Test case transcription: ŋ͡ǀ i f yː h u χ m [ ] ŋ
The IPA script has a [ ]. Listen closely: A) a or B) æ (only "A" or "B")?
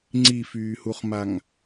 A